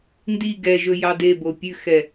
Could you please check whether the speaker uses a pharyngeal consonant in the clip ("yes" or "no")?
no